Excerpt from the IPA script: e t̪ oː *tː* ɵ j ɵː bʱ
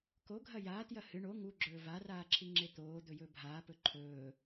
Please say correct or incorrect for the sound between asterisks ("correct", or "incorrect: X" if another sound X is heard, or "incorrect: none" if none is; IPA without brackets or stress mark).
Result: incorrect: d̪